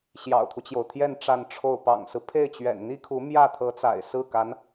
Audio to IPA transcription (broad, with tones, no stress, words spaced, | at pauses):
ɕjɑ̰˨˩ʊ̯t̪ʰu˦t͡ɕjo˩ʊ̯t̪ʰjɛ˥˧n ʈ͡ʂa˥˧nʈ͡ʂʰo˥˩ʊ̯ pɑ̰˨˩ŋsɹ̩˦pʰe˥˩ɪ̯t͡ɕɥɛ̰˨˩n n̪i˥kʰu˧˥ mjä˥˩t̪ʰɤ˧˥t͡sa̰˨˩ɪ̯ sɹ̩˥˩ka˧˥n